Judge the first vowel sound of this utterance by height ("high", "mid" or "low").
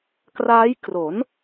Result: low